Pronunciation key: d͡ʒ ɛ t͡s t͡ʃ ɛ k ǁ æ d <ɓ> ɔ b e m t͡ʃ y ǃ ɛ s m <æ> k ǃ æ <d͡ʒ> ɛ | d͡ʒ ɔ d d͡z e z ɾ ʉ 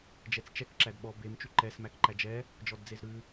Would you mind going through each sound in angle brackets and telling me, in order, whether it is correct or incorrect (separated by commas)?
correct, correct, correct